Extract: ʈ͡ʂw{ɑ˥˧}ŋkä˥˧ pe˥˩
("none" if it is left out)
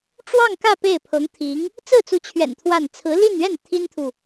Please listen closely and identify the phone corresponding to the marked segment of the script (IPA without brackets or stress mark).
ɑ˥˧